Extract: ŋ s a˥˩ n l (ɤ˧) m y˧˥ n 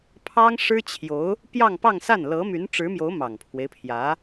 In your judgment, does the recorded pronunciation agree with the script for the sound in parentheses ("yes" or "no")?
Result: no